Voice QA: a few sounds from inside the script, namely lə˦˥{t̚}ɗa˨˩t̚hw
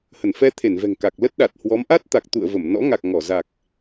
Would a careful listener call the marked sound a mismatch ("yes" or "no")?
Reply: no